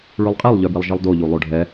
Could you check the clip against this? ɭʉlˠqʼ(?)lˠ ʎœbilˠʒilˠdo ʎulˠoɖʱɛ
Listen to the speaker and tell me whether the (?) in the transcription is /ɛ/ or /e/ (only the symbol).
e